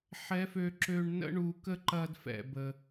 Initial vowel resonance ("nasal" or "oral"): oral